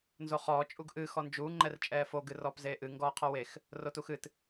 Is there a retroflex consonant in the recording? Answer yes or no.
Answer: no